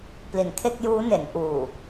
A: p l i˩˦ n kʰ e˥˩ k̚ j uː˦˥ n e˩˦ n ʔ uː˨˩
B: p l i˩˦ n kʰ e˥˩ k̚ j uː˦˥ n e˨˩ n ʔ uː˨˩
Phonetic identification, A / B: A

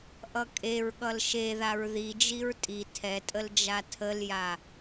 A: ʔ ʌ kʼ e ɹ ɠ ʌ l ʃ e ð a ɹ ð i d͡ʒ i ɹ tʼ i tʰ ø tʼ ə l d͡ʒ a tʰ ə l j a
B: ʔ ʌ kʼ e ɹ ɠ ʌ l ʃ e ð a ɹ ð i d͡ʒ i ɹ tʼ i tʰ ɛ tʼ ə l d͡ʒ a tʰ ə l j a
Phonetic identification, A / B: B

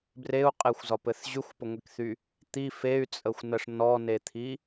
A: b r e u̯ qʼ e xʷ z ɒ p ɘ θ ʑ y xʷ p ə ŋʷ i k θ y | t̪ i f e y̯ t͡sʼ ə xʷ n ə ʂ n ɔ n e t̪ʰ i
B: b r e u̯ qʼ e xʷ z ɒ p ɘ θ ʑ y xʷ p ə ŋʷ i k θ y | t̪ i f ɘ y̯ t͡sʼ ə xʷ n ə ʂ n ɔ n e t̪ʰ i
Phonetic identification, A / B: A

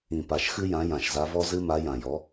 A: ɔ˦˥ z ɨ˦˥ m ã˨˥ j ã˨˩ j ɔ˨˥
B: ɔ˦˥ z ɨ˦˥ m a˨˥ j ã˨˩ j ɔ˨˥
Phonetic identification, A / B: B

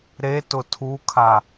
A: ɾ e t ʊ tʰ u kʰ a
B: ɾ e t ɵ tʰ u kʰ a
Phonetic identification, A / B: A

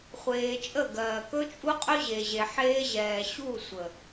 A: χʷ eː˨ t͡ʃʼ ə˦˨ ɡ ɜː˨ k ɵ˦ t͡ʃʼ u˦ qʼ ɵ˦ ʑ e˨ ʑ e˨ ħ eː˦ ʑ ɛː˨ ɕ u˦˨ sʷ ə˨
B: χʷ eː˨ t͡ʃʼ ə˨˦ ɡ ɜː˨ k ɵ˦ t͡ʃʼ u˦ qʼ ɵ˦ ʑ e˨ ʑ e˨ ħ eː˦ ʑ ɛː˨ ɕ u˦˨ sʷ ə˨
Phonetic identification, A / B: A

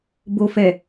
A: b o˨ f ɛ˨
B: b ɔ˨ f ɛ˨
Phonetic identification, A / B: A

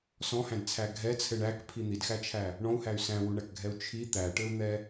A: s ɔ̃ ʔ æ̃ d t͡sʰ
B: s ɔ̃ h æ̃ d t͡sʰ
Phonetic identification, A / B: B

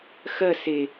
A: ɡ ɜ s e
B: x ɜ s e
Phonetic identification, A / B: B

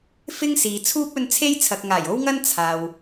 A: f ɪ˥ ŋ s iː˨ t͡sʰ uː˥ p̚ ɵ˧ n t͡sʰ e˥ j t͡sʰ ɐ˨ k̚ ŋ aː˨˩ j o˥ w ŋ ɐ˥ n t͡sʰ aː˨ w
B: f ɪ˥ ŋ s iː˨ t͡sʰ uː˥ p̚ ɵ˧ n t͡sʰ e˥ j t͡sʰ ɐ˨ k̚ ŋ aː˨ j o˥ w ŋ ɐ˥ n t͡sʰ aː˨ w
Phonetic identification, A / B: A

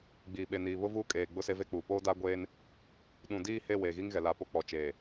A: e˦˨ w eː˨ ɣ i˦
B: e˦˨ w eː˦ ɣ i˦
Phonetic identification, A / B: A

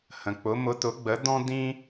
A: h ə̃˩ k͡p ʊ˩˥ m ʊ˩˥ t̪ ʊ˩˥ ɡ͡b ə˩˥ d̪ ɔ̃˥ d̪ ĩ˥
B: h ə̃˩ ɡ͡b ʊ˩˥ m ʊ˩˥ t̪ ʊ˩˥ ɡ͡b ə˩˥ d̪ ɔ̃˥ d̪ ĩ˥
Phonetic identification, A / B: A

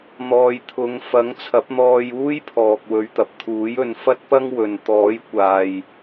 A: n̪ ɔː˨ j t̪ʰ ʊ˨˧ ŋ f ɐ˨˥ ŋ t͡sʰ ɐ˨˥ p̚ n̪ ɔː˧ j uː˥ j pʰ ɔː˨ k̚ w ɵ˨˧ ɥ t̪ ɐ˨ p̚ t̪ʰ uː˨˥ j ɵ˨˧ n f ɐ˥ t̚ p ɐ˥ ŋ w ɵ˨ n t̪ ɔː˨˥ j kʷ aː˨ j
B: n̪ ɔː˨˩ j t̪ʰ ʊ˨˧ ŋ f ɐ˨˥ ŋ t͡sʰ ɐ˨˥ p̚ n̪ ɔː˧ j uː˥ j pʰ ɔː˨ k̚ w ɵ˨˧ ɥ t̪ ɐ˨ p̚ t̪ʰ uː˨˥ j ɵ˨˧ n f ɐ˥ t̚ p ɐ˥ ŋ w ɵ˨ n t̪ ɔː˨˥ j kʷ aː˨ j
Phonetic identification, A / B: A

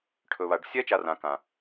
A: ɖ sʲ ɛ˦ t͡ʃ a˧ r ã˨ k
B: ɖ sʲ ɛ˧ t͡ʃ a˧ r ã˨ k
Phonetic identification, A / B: A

